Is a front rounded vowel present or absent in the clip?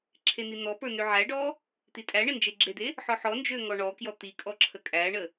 present